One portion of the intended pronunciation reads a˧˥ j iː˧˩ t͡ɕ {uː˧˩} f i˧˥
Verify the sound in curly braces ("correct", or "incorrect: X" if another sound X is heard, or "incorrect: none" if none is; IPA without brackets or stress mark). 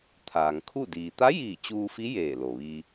incorrect: uː˧